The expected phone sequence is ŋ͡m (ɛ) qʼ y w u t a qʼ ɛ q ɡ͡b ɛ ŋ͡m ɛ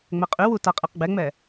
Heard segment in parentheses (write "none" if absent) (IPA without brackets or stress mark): ɛ